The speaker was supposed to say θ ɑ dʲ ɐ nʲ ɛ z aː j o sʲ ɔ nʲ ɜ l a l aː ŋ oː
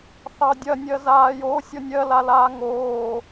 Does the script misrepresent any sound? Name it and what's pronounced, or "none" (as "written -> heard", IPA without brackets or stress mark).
ɛ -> ɜ